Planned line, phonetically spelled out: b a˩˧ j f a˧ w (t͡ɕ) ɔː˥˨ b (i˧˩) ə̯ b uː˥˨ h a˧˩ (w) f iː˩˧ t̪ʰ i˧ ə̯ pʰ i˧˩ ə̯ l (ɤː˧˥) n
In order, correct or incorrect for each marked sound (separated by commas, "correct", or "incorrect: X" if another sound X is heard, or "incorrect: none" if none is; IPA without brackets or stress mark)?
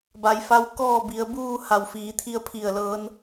incorrect: k, incorrect: i˩˧, correct, correct